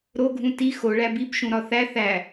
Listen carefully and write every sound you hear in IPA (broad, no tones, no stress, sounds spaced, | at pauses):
ɾ o ɡʱ ũ t i x o ɭ æ b i b ʃ ũ ɾ ɒ θ æ θ æ